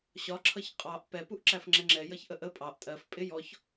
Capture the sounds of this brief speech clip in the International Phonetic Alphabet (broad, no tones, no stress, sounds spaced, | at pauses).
ɕ ɒ ǁʰ ʌ ç qʼ ɑ ʔ p ɛ p u ʔ ǁ æ f ŋ͡ǁ ɛ ŋ͡ǁ ɛ j ʌ ç ʔ ə ʔ ə pʼ ɑ ʔ tʼ ɜ f pʼ ɪ j ɔ ç